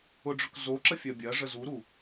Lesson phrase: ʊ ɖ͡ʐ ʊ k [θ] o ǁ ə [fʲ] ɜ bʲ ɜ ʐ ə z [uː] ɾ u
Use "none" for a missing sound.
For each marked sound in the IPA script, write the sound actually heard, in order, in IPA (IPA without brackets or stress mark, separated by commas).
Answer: z, fʲ, u